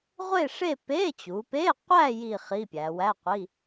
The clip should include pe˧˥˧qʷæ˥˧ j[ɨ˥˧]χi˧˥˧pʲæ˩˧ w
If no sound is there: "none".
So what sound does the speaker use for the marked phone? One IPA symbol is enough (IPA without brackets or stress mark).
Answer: i˥˧